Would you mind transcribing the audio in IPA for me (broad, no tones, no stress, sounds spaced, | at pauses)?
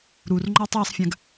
ɾ u r ŋ͡ǃ ɔ tˤ ɜ sˤ fʲ ã ɡ